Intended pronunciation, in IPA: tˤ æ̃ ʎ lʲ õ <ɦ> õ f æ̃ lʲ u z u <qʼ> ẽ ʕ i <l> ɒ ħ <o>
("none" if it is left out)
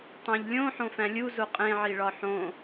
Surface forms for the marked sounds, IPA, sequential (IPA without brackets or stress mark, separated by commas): ħ, qʼ, ɭ, õ